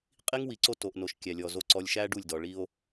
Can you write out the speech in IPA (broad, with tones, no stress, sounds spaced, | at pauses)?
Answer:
qʼ i˦ ŋ w i˨ ǀ o˦ t o˨ ʔ n o˨ ʃ kʲ æ˨ lʲ ɔ˨ z o˨ ǀ ɔ˨ lʲ ʃ æ˦ ɖ u˦˨ lʲ d ɔ˨ ɭ i˦ o̯